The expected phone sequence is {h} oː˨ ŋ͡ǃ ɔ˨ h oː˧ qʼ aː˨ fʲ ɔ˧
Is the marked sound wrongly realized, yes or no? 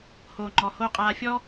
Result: no